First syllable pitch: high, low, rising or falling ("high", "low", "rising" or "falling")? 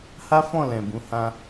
high